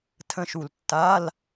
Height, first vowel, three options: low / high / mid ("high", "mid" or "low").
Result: mid